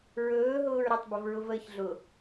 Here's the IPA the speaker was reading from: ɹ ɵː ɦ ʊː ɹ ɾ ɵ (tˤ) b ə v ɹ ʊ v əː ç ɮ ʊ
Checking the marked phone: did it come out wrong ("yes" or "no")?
no